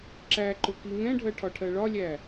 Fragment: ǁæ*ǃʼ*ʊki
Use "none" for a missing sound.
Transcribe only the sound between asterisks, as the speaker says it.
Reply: ǃ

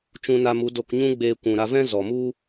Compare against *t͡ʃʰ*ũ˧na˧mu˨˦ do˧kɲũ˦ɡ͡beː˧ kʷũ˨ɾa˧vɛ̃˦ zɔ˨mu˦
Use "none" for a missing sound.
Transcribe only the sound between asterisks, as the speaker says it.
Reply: t͡ʃ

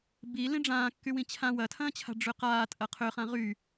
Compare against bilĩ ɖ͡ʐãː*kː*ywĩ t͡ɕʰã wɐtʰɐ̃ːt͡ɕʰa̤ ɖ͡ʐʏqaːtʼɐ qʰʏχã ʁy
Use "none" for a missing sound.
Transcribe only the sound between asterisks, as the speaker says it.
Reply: kː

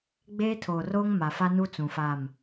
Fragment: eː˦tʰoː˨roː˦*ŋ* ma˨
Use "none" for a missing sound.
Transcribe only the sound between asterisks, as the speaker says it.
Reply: ŋ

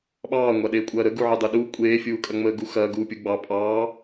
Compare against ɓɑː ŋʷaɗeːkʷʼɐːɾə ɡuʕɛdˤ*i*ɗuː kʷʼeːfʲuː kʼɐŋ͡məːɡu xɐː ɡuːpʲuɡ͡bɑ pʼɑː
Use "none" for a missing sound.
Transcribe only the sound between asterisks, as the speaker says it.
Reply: e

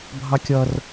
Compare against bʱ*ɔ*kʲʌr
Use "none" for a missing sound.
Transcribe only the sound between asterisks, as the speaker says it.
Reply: ɑ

